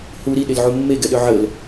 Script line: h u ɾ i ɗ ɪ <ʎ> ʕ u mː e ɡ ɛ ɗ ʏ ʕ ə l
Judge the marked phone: incorrect: l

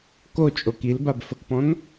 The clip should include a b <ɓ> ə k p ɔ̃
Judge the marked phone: incorrect: f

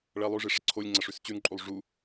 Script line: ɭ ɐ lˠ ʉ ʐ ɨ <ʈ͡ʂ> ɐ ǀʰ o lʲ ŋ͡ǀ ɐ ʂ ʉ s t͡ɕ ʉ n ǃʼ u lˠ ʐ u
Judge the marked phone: incorrect: ʂ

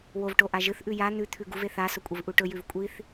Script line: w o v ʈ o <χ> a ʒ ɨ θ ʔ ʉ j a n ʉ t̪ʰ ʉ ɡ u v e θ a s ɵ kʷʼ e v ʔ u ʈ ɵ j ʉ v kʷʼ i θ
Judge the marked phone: incorrect: ʔ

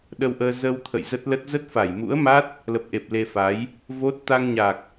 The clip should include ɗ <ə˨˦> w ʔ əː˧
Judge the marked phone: incorrect: ə˧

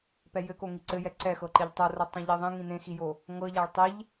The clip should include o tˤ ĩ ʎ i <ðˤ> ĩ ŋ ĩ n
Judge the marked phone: correct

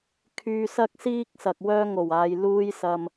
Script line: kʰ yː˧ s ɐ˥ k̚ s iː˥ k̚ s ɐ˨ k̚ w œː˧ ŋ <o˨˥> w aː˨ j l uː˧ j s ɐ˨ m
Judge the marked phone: incorrect: o˨˩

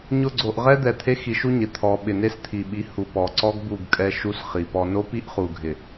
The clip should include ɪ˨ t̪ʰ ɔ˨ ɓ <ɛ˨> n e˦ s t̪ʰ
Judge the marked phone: incorrect: ɪ˨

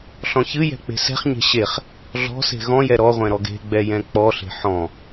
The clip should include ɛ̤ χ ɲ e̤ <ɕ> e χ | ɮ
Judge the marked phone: correct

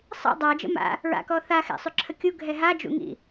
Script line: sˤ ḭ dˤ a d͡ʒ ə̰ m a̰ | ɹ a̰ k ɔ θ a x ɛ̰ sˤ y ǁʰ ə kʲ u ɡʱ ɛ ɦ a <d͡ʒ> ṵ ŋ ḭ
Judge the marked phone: correct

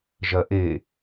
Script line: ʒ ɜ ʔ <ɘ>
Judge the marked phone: incorrect: e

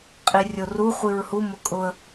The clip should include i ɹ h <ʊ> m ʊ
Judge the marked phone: incorrect: u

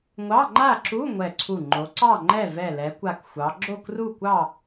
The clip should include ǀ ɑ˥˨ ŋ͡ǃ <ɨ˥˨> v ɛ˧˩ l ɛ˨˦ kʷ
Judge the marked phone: incorrect: ɛ˥˨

